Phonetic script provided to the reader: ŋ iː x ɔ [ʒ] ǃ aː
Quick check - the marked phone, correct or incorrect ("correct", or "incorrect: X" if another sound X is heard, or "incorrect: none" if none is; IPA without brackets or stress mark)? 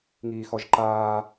correct